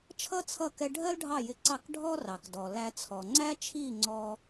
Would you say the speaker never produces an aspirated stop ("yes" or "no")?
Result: no